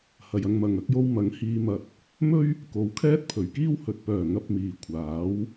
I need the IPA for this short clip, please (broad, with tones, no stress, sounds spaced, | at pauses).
h ɐ˨ j ɐ˧ ŋ m ɐ˨ ŋ ɐ˧ k̚ j o˧ w m ɐ˨˥ ŋ h iː˧ m ɐ˧ t̚ | m ɵ˥ ɥ | k o˨˥ w kʰ ɛː˥ t̚ pʰ ɵ˨˩ ɥ k iː˥ w h ɵ˨ t̚ p œː˨˩ ŋ ɐ˨ p̚ m iː˨ kʷʰ aː˨˥ w